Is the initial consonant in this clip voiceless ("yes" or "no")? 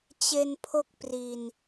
yes